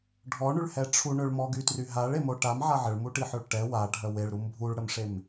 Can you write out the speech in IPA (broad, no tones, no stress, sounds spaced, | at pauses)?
ɖʱ ɔ ɳ y ɭ h ɛ ʈ͡ʂʰ u ɳ ø ɭ m ɔ ɡ y t r y ɦ a ɭ e m o ʈ a m ʕ a ʕ ə ɭ m u ʈ i ħ œ ɭ ʈ ɛ w a ɖʱ œ w e ɭ ɾ u m bʱ u ɭ ɽ ə m ʂ e m